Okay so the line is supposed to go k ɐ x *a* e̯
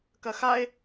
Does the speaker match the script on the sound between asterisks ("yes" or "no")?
yes